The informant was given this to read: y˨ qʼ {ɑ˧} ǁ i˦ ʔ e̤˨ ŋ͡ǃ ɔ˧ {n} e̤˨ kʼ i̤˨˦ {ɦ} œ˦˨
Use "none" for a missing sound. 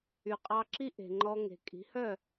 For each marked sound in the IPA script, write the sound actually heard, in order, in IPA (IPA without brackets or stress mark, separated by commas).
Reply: ɑ˧, ŋ, h